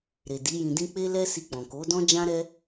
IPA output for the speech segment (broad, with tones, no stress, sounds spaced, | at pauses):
ɾ e˨ d i˨˦ j ĩ˧ d ĩ˦ k͡p e˦ l ɛ˦ s i˧ k͡p ɔ̃˨ k o˨˦ d ɔ̃˦ d͡ʒ ã˦ ɾ ɛ˦